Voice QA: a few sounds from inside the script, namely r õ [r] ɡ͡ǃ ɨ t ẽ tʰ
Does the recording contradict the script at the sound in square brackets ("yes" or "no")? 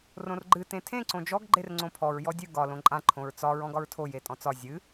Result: no